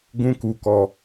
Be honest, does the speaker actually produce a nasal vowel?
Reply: yes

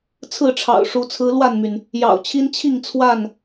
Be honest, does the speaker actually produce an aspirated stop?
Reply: yes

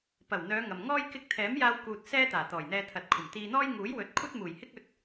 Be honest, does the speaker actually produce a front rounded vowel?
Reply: yes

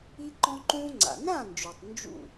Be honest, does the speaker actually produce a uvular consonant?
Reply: no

